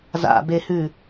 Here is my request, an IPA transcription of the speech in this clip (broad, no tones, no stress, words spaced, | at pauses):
za̰behʉ